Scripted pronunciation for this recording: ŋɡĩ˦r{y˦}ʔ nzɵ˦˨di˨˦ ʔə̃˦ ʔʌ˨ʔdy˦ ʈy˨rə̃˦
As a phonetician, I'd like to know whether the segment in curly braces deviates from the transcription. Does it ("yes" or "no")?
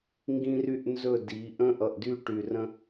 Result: no